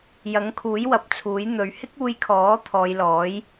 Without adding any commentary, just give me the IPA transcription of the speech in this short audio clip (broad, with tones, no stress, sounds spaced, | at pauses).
j ɐ˨˥ ŋ kʰ uː˨˥ j w ɐ˨˥ p̚ t͡sʰ uː˨˥ j n̪ ɵ˨˧ ɥ h ɪ˥ k̚ uː˧ j kʰ ɔː˨˥ t̪ʰ ɔː˨˧ j l ɔː˨˥ j